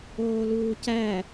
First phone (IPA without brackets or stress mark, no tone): oː